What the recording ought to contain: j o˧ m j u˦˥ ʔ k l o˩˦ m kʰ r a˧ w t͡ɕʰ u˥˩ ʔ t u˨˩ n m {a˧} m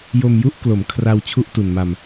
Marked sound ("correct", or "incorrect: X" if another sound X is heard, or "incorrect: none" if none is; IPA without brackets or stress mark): correct